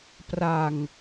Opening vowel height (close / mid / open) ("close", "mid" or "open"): open